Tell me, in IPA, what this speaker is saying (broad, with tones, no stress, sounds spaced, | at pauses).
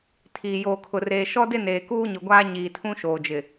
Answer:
tʰ iː˨ j oː˨ kʰ ʊ˨ r eː˨ ʃ ɔ˦ d ɪ˦ n eː˨ k uː˦ ɲ ʊ˨ ɡʷ aː˦ ɲ iː˨ tʰ ũ˦ ʃ oː˨ d͡ʒ ɪ˨